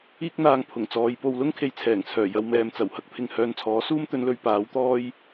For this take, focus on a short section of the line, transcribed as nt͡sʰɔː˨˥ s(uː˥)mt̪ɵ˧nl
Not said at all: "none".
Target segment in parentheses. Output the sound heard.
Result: uː˥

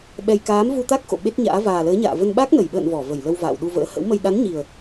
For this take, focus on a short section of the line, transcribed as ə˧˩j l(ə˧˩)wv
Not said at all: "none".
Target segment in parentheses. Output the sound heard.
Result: ə˧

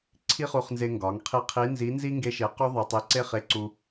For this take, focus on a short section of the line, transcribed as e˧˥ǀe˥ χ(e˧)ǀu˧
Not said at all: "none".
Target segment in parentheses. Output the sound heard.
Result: e˧˥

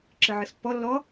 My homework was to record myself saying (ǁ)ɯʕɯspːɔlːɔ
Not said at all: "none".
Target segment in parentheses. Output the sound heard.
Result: ǁ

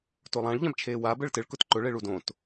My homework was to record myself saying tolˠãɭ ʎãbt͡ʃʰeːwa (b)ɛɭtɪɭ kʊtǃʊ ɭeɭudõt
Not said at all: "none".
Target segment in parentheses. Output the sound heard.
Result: b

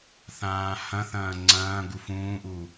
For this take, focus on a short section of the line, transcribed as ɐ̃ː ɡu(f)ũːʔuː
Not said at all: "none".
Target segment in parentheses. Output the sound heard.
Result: f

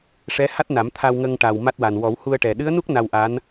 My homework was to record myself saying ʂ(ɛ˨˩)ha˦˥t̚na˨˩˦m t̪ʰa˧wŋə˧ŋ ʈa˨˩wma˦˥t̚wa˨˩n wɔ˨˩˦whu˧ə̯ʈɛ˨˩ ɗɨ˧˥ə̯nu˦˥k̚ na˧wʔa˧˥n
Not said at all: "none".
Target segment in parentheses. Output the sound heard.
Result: ɛ˧˥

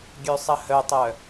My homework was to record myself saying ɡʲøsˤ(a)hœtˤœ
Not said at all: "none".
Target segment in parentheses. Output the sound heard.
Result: ə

